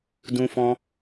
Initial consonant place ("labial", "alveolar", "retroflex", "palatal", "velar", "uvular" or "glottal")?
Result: alveolar